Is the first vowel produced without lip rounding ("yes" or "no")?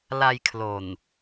yes